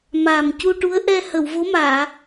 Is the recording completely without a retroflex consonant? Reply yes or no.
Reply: no